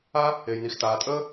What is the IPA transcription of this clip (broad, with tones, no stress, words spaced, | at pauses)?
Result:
a˥ | e˩jni˩xtaː˩tʼəː˥